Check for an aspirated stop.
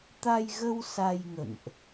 absent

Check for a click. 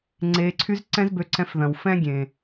present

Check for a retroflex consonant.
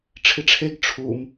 present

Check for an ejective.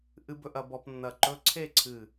absent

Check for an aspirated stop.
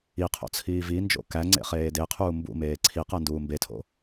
present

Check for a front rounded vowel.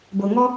absent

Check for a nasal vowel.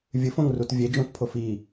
present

